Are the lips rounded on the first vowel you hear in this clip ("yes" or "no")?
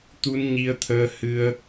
yes